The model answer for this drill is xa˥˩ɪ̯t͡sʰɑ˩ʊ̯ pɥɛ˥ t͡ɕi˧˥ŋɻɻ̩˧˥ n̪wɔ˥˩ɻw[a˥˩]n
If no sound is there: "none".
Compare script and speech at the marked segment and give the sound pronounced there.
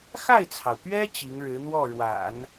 a̰˨˩˦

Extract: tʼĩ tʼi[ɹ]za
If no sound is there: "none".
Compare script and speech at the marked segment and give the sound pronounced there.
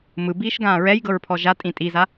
none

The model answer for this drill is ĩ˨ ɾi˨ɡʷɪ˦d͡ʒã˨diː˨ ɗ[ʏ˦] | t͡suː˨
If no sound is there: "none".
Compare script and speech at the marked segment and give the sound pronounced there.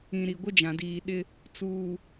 ɪ˦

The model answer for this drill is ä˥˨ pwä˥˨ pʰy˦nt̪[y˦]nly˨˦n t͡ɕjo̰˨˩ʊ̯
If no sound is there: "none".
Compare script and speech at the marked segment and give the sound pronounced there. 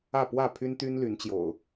y˦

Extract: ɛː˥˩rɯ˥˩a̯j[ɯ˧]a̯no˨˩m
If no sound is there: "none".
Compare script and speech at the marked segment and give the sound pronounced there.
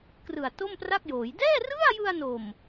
ɯ˧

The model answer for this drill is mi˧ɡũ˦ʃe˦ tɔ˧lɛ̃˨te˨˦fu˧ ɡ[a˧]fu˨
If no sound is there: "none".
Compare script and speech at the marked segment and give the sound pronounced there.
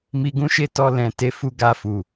a˧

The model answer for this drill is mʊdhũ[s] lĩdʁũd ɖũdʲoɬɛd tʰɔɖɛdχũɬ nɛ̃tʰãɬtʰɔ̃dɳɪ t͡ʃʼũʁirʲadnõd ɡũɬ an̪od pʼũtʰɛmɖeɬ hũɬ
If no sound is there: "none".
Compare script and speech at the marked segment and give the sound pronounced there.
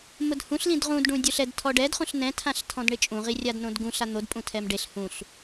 ɬ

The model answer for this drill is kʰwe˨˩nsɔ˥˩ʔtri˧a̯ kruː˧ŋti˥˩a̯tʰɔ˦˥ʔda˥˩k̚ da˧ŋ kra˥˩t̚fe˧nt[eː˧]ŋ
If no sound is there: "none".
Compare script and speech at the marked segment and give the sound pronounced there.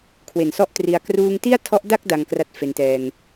ɛː˧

